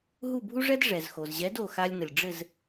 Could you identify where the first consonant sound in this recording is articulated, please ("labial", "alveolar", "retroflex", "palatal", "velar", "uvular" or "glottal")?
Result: glottal